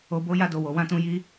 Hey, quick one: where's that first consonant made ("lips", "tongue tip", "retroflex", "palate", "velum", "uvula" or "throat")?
lips